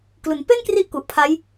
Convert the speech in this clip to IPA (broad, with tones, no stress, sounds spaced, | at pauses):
k l u˩˦ n p e˥˩ n k r i˦˥ ʔ k u˨˩ ʔ pʰ a˦˥ j